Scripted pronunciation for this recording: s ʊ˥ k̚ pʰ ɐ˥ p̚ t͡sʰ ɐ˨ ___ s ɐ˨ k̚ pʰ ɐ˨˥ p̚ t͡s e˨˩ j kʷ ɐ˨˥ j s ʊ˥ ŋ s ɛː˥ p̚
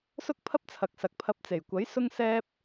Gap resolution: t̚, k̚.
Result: k̚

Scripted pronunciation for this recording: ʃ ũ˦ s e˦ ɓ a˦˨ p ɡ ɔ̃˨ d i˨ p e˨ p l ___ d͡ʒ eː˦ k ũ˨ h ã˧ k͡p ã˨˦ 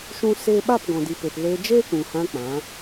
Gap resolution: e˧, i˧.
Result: e˧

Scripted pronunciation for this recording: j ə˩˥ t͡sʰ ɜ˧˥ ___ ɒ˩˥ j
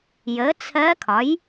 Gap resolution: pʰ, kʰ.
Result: kʰ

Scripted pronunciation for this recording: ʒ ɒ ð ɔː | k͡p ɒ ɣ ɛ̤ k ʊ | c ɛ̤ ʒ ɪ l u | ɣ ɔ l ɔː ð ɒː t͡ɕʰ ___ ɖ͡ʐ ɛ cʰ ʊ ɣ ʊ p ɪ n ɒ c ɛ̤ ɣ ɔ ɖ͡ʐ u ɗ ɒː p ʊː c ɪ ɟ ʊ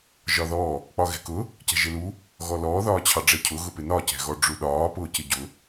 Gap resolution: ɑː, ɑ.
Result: ɑ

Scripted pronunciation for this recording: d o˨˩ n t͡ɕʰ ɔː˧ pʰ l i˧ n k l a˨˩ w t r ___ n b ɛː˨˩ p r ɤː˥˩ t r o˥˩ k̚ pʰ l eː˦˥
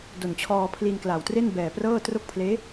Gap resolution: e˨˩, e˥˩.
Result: e˥˩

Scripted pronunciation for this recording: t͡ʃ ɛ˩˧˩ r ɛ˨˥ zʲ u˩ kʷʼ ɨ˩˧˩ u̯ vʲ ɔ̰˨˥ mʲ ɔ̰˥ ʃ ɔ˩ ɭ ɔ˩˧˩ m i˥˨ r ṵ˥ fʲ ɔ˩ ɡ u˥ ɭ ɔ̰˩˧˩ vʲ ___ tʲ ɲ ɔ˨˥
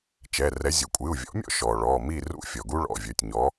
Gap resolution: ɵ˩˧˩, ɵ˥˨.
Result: ɵ˩˧˩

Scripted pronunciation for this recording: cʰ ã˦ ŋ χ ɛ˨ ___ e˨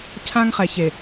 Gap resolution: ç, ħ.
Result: ç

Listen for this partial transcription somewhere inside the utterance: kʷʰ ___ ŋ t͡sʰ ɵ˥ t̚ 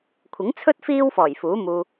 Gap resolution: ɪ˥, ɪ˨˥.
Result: ɪ˨˥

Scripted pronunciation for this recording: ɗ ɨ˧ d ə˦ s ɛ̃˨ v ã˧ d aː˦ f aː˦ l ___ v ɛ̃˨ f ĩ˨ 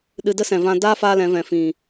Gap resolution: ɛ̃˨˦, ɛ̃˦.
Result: ɛ̃˨˦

